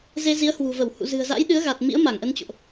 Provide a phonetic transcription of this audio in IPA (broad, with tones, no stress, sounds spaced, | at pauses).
z e˧ z i˨˦ ə̯ h w ṳ˨˩ v ə˧˩ w h ṵ˧˨ z ɨ̤˨˩ ə̯ z a̰˧˥ j ɗ ɨ˨˦ ə̯ ɣ a˨˩ t̚ m ḭ˧˥ ə̯ m a˧˩ ŋ ʔ ə˧ n t͡ɕ o̰˧˨ ʔ